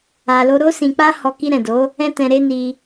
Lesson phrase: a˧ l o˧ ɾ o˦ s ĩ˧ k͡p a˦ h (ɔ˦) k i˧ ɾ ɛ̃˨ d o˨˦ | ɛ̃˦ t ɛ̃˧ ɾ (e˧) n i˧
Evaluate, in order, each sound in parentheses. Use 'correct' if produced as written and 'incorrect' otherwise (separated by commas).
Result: incorrect, correct